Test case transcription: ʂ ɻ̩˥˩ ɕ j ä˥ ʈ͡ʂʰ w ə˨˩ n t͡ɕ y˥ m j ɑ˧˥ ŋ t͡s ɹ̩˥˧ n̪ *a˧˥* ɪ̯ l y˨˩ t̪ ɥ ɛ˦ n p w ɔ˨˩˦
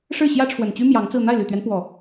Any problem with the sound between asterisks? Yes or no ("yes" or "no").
yes